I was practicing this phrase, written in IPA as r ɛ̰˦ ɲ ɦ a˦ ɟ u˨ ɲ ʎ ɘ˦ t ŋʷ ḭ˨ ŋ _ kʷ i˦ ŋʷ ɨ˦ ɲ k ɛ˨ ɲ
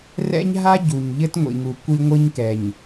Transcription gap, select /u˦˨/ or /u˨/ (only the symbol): u˨